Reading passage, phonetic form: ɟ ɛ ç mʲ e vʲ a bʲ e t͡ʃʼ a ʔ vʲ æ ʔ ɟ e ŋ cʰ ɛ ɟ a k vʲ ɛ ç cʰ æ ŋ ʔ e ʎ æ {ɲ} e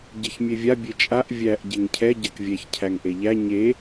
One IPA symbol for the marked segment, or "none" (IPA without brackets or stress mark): ɲ